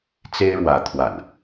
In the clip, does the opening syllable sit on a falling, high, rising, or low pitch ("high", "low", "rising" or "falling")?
high